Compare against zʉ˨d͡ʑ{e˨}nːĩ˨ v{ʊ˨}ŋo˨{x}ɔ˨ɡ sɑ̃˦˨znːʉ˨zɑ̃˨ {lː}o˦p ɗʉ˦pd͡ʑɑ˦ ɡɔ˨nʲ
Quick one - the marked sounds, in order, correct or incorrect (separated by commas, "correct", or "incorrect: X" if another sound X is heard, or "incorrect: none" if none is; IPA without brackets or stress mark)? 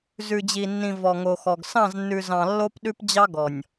incorrect: i˨, incorrect: ɔ˨, correct, correct